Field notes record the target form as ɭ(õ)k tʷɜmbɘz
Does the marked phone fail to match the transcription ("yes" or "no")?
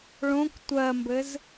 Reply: no